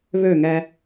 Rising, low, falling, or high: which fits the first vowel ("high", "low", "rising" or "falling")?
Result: falling